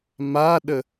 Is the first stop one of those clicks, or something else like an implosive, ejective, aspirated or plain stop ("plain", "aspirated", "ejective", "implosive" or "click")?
implosive